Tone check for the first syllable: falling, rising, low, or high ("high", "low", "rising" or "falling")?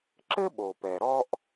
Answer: high